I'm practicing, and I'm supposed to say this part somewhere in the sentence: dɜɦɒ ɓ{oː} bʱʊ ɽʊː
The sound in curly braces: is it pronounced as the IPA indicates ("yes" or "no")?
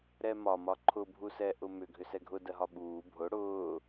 no